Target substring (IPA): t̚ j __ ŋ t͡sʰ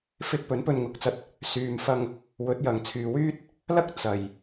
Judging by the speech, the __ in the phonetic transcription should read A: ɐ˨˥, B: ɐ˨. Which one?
B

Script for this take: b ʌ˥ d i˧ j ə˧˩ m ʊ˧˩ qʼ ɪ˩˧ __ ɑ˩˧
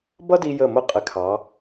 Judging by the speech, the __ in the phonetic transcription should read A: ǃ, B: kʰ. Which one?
B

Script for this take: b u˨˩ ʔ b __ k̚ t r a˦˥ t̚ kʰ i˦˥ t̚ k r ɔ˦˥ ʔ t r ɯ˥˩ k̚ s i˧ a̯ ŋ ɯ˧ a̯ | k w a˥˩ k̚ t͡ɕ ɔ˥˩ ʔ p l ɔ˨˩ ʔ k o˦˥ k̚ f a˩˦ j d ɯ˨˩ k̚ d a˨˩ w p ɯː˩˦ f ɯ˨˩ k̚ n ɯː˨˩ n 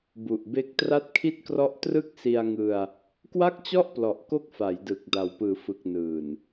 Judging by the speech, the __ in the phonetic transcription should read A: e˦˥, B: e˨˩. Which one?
A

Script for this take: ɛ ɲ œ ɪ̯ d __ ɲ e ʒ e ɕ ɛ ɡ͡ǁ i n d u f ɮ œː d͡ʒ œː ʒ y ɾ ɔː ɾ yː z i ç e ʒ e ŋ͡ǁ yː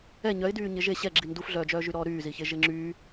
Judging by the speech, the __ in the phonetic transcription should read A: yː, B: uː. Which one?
A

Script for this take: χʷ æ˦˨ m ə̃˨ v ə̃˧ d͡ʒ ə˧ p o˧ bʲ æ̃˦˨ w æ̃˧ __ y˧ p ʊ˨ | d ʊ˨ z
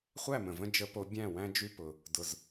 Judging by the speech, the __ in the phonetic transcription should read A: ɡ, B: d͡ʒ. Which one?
B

